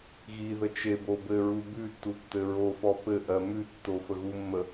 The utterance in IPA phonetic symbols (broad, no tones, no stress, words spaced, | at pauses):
ɣiðə t͡ʃebo bɘɹu bʉtːu tːɘɹofɔ pɘ ʔɜmʉtːo fəɣumːə